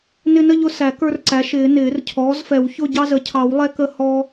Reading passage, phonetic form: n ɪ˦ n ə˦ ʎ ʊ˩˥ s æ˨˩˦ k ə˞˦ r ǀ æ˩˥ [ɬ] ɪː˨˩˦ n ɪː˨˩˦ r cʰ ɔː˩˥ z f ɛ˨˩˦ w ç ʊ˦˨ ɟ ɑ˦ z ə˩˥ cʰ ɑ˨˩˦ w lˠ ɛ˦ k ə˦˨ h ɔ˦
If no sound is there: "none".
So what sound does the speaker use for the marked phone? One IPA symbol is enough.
ʃ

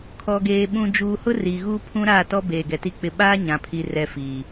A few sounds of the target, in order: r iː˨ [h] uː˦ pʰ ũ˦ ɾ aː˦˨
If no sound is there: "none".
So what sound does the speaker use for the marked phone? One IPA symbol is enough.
ɣ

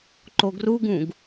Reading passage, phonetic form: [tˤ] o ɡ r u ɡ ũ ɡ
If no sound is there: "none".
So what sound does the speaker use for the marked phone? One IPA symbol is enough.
ǃ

